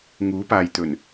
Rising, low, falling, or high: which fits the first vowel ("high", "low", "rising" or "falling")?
rising